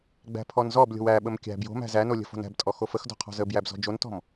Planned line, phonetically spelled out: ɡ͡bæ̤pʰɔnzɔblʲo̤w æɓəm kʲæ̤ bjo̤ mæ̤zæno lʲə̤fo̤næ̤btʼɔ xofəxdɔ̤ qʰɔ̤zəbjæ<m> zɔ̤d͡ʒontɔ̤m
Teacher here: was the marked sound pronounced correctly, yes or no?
no